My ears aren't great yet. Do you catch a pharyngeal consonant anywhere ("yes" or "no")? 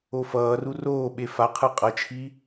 no